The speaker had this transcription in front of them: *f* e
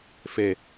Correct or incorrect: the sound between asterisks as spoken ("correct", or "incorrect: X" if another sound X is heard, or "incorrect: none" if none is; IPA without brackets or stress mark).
correct